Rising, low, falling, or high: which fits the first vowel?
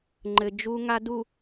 low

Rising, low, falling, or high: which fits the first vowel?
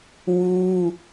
high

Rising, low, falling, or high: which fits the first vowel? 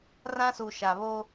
high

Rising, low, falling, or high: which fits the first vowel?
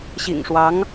low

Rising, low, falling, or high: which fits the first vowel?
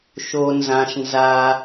low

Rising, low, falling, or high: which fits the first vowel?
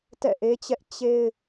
falling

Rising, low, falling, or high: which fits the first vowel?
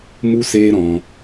high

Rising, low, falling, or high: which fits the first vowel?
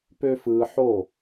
high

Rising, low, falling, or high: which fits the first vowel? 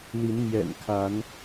rising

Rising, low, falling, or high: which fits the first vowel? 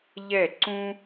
falling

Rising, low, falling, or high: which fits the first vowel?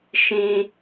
high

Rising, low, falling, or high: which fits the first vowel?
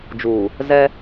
low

